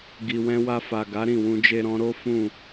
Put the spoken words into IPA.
ɡi˨wɛ̃˧wa˧fa˨ ɡa˨˦ɾĩ˦˨wũ˧ d͡ʒe˧ɾɔ̃˧ ɾo˦fũ˦˨

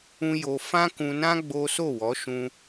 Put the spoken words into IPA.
ũ˦jo˧ fã˦kũ˧nã˦ ɡ͡bo˦ so˦˨wɔ˨˦ʃũ˧

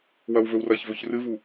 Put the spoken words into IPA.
wɐwvɵwrɐçvɵç rɨvu

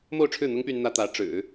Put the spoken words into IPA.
mo˥˧ʊ̯ʈ͡ʂʰɻ̩˥˩n̪ʊ˥ŋ py˥nn̪ä˥ t̪ä˧˥ʈ͡ʂɻ̩˨˩˦

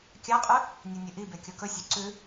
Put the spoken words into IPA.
kʲaqʼʉ | nʲenʲɨʔibe kʲokɵsʲʉ ǀʉ

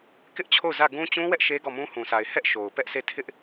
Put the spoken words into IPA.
kɪ˦ʔt͡ɕʰo˦˨ʊ̯ zä˦˨ɡũ˦ t͡ɕũ˦wɛ˦ʔ ʃe˦ɡɔ˦˨mũ˦ hũ˨sa˨ɪ̯ hɛ˦ʔ ʃo˨ʊ̯pɛ˦ʔse˦˨ tʰɪ˦ʔ

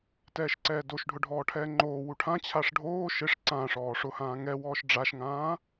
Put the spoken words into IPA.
tɛːʃǀɛːdoʃɖʱʊ ɖʱɔːʈʰɛːŋ͡ǃoːwu ʈʰãt͡ɕʰaʂ ɖʱoː ʃɪʂ ǀãːʂɔː ʂʊhãː ŋɛwɔːʃ ɖ͡ʐaʃŋãː

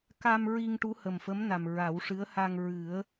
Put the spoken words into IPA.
ka˧m ɹi˧ŋ ʈu˧˥hə˨˩mfə˧˥mna˨˩m ɹa˨˩˦wʂɨ˧˥ə̯ ha˧ŋ ɹɨ˨˩˦ə̯

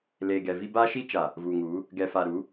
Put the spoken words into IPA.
leː˨ɡɛ˨ vi˦ ba˦ʃi˦t͡ʃa˨ | vuː˨ŋuː˨˦ | ɡɛ˨fa˨ɾu˨˦

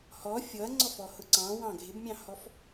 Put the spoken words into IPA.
hɔ fʲɔɐ̯ŋ͡ǀɔfɔ hʊǀɑ̃ wɑ̃ ɡʱɪbmʲɑ̃hɔf

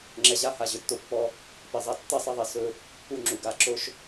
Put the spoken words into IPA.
ŋ͡ǁɛ˨ʑa˦ ha˨ ʑɵ˨tːo˦pːɔ˦ | pe˨zˤa˦ tːɛ˦sˤɛ˦ðˤe˨ sɵ˦ | u˦ŋ͡ǁu˨ɡa˦˨ ǁo˦ʃ

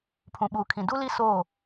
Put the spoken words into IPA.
pʰũ˨ɓuː˨kʰĩ˨ du˦li˦ soː˦˨

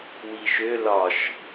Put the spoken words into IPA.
wiʃø lɒʃ

